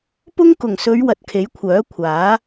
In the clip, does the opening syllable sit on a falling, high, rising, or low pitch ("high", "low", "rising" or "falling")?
high